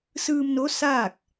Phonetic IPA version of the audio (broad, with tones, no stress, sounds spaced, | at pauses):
s ɯː˧ m n o˧˥ s aː˥˨ k̚